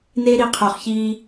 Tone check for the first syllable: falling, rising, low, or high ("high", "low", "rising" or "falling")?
high